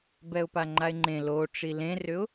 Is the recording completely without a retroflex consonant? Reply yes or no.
no